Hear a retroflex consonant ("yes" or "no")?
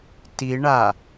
yes